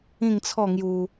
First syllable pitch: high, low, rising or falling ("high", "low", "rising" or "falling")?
falling